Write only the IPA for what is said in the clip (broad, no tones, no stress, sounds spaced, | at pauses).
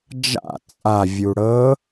d͡ʒ a̰ t͡sʼ a vʲ u ɽ ɤ